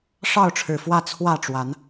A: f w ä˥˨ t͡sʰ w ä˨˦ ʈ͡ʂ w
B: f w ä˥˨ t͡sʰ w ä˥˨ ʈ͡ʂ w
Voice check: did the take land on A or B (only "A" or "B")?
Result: B